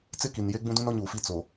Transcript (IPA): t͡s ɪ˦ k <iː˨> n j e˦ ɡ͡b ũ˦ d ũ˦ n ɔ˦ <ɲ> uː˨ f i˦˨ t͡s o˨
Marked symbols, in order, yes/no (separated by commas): no, yes